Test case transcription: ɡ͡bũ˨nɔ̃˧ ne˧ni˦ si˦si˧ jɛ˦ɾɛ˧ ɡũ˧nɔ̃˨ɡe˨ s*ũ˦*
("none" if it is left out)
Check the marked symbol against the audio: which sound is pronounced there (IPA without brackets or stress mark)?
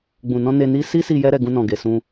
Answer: ũ˧